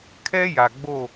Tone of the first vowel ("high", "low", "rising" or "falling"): high